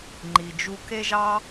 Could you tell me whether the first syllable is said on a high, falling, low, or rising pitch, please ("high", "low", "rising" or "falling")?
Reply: low